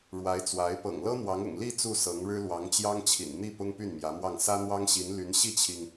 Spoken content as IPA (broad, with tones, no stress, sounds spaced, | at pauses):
ɻ w a˧˥ ɪ̯ t͡s w a˧˥ ɪ̯ p ɤ̰˨˩ ŋ l ɤ˥ n̪ w ɑ˧˥ ŋ ʊ̰˨˩ ŋ l i˥˧ t͡s u˥˩ s ɤ˧˥ ŋ ɻ ɻ̩˥ l w ɑ˧˥ ŋ t͡ɕ j ɑ˥ ŋ t͡ɕʰ ḭ˨˩ n n̪ i˥˩ p ʊ˥ ŋ p y˥˩ n m j ä˧˥ m w ɑ˥˩ ŋ s ä˥ n̪ w ɑ˥ ŋ ɕ i˧˥ n l y˧˥ n ɕ i˥˩ t͡ɕʰ i˩ ŋ